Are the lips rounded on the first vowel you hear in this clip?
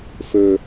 yes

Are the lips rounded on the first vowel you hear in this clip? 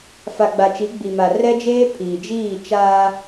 no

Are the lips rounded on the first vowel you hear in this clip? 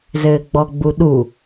no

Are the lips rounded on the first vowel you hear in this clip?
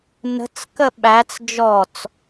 no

